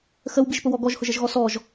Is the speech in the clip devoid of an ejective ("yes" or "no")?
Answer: yes